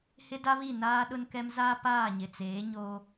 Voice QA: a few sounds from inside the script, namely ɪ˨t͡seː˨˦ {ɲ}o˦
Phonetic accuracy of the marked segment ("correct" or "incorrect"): correct